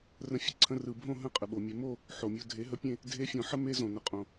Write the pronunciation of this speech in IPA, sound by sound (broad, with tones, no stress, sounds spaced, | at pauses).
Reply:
r ə̃˧ fʲ ə˧ ǀʰ ə̃˧ r ɯ˨ bʱ õ˦˨ ɦ ə̃˦˨ qʼ ə˨ ɓ o˨ mʲ e˧ m o˦˨ | ħ o˨ mʲ o˧ dʱ e˨˦ ɦ ə˧ pʲ ẽ˦˨ | dʱ e˧ fʲ õ˨ ħ ə˦ m e˦ z õ˨ n ə˨ qʼ õ˨